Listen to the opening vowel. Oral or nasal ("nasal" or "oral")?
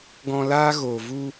nasal